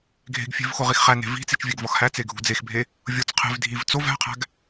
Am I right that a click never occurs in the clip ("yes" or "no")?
yes